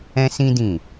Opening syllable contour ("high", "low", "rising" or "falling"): high